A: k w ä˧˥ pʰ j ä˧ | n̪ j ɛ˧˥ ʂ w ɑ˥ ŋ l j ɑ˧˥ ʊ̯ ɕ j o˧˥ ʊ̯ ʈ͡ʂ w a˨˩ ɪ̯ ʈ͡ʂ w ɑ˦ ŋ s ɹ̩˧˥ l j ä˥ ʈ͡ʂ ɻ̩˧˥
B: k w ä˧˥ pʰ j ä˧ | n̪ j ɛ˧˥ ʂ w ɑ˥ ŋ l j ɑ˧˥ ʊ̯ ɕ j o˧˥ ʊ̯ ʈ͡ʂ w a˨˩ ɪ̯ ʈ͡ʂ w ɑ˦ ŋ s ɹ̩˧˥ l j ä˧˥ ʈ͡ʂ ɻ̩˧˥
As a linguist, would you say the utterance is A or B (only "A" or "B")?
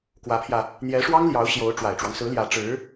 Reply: B